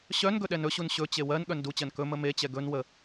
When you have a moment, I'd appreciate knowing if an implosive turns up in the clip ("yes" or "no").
yes